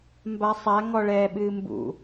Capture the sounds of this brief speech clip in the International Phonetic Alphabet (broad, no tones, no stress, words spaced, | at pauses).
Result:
mbasˤa ŋɔɭɛːɓɨːmbṵ